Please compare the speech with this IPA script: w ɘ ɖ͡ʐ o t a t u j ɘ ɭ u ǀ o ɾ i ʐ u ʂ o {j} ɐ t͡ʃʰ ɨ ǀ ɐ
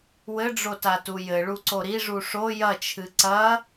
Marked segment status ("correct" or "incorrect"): correct